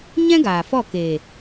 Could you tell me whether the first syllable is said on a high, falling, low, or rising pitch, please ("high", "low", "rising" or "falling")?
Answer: high